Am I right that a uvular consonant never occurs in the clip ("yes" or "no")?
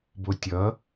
yes